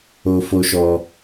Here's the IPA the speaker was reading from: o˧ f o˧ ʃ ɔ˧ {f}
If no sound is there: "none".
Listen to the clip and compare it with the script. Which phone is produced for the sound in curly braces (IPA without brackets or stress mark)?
none